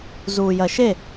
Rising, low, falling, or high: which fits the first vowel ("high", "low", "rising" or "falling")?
low